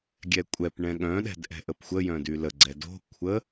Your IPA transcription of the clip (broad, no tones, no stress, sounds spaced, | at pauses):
ɡʲ ɛ kʷʼ ɛ p ɳ ɛ̃ ɠ œ̃ ɗ ɛ̤ d ʔ ɛ̤ ʔ ə p xʷ ə j œ̃ d y l ə ɡ͡ǀ ɛ d o̤ kʷʰ ə